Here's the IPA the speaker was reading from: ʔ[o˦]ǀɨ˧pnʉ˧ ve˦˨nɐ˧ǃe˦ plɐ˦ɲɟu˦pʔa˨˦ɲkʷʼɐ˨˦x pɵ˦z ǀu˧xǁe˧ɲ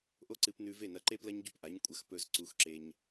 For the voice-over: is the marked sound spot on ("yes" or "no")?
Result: yes